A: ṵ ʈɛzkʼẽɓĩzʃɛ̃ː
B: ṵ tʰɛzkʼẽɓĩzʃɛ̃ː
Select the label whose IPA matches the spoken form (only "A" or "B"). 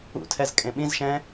B